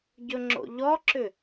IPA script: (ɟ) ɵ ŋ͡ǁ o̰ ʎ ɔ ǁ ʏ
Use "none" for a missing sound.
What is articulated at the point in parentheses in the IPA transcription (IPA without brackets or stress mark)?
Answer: ɟ